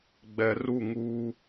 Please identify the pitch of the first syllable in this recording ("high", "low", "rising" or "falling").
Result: low